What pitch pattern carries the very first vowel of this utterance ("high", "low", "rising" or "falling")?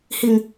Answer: low